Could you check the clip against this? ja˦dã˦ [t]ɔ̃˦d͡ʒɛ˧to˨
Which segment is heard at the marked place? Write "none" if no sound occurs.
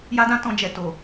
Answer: t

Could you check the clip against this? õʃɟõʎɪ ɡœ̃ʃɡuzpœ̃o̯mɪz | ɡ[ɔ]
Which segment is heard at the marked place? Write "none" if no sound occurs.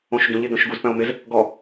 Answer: ɔ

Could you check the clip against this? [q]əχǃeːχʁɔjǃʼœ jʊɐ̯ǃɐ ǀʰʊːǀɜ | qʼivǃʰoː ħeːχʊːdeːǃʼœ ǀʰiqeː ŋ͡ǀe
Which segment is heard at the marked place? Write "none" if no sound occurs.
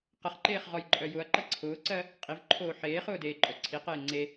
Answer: q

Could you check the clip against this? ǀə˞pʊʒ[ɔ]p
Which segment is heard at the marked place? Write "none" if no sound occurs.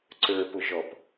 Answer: ɔ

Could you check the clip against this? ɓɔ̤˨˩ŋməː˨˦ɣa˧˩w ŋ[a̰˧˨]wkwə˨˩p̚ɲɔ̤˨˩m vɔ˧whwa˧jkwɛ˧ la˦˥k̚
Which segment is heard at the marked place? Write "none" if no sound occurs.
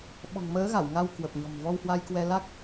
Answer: a˧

